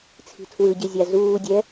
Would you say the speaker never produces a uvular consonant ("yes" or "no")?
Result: yes